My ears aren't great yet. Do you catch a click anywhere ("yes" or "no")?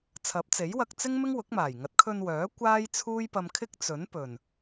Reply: no